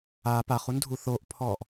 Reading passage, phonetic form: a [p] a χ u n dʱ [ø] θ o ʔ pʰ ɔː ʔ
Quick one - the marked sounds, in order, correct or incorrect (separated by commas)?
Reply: correct, incorrect